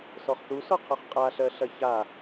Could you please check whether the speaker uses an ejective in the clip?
yes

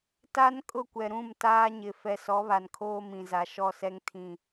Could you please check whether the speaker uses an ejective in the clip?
yes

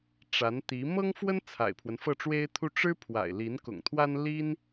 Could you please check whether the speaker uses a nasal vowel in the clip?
no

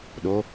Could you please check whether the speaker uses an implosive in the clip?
yes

